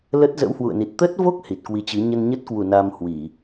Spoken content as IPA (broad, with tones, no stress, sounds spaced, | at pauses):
l ə˦˥ t̚ z ə̰˧˥ w h w ṵ˧˨ ə̯ n i˨˩ t̚ t̪ ə˦˥ t̚ v o˦˥ k̚ h i˨˩ t̚ k w i˨˦ t͡ɕ ɨ˨˦ ɲ ə˧ n ɲ ə˦˥ t̚ k w u˧˩ n a˧ m h w i˧˩˨